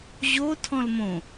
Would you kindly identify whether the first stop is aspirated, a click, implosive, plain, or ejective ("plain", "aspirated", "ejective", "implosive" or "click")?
aspirated